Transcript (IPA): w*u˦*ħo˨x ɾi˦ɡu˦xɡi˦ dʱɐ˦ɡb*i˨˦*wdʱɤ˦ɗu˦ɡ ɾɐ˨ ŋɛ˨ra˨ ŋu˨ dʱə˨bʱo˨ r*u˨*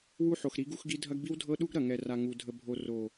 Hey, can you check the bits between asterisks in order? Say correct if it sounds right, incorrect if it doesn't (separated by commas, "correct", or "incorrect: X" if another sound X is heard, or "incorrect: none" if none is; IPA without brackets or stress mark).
correct, incorrect: i˦, incorrect: o˨